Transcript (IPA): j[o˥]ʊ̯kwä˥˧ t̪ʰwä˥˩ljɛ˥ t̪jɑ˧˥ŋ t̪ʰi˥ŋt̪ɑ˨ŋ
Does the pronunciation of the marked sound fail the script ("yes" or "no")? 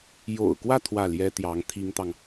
yes